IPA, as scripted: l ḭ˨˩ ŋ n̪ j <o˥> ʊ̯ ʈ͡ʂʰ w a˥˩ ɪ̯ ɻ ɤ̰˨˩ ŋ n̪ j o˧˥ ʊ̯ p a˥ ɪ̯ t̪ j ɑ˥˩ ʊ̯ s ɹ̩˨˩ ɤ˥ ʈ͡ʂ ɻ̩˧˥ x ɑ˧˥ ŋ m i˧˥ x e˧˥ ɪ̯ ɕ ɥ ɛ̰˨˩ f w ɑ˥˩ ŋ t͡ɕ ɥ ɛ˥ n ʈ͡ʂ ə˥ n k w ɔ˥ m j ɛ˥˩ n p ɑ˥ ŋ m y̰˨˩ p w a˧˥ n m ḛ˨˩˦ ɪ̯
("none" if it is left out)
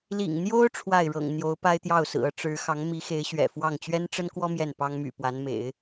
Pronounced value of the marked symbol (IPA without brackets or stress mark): o˥